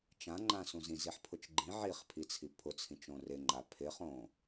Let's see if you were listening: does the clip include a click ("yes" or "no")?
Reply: yes